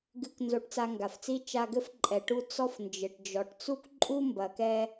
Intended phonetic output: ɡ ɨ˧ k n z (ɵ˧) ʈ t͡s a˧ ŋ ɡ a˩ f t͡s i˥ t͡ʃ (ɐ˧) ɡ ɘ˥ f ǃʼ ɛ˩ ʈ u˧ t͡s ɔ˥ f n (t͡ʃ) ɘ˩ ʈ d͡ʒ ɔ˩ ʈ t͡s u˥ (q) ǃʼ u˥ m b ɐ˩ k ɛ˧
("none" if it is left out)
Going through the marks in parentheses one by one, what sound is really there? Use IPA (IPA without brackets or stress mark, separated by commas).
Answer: o˧, a˧, d͡ʒ, k